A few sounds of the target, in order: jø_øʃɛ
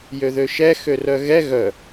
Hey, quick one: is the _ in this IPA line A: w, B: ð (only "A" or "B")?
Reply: B